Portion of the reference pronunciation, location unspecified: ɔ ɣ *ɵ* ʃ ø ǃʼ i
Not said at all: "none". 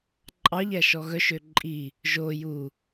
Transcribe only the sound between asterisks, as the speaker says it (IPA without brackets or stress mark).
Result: œ